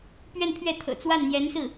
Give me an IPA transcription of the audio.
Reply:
p ɥ ɛ˥˧ n pʰ ɥ ɛ˥˩ t̪ʰ ɤ̰˨˩ t͡s w a˥˩ n n̪ j ɛ˧˥ n s ɹ̩˥˩

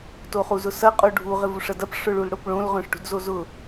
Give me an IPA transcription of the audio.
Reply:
t o χ u z ʊ s ɐ qʼ o ɖʱ u ʁ ɪ v u ʂ ɐ d ɐ p ʂ ʊ ɭ u l ɽ o p ɭ õ l ʁ œ̃ ʂ ʈ ṳ d z o z ʊ

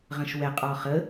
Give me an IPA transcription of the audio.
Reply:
ʁ ə̃ ʃ w ɛ qʼ ɔ χ ə

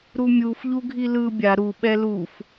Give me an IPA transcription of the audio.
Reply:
ɾ u mʲ u f ʎ u ɡʱ i l ɯ bʲ a ɾ u ɓ ɛ l u f

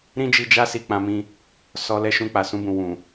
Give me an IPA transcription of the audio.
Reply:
ɾ ĩ˦ d͡ʒ i˧ d͡ʒ a˦ s i˧ k͡p ã˧ m ĩ˧ | s ɔ˧ l ɛ˧ ʃ ũ˧ k͡p a˨ s ũ˧ b ũ˨ w ũ˨

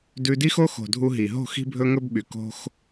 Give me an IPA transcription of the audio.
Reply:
d ʉ˧ d i˦ x o˦ x o̤˨ dʱ u˧ ɦ i˨ ɦ o̤˦˨ x i̤˦ bʱ ɵ˦ ŋ ɵ˦ b ɓ y˨ k o̤˦ x

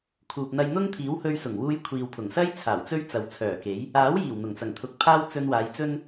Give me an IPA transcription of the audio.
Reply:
kʰ uː˨ p̚ n̪ ɐ˧ j n̪ ʊ˥ ŋ t̪ʰ iː˨˥ w h ɵ˧ ɥ s ʊ˨˩ ŋ w uː˧ j kʷʰ iː˨ w pʰ ʊ˨˩ ŋ s ɐ˥ j t͡sʰ aː˨˩ w t͡s ɵ˥ ɥ t͡s ɐ˨ w t͡sʰ œː˨˩ k e˨˥ j | aː˨˥ w j iː˨˩ w n̪ ʊ˨˩ ŋ t͡s ɐ˨˩ ŋ t̪ʰ ʊ˨ k̚ pʰ aː˥ w t͡s ɵ˧ n w aː˨˧ j t͡s ɵ˥ n

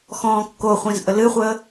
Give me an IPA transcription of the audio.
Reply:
x ɔ̃ː kː o χʷ ĩ z ʔ ə l ɨ χʷ əː

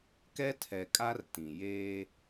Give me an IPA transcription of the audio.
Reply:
k ɛ˦ tʰ ɛ˨ kʼ a˦ r t ĩ˨ j eː˦

